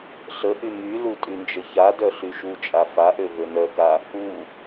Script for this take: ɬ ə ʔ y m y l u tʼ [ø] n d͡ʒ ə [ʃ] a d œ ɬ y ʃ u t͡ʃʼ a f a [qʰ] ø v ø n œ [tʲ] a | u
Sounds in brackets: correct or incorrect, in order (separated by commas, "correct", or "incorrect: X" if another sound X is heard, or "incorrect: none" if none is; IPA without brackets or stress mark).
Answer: incorrect: y, incorrect: ç, incorrect: ʔ, incorrect: k